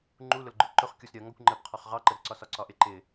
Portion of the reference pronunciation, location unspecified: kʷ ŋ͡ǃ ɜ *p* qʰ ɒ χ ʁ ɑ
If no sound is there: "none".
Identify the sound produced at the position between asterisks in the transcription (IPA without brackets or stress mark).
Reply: p